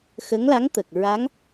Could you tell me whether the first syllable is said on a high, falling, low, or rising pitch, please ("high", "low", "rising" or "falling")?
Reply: rising